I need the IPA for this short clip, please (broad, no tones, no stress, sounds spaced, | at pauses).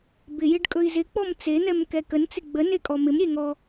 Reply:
b ɪ j ɪ ɖ kʼ ɵ i̯ z ɪ k͡p ɔ m t͡s e n̪ ɛ m k ɛ k ə n t͡s ɪ ɡ͡b ə n e kʼ ɔ m ɪ m ɾʲ e ŋ ɔ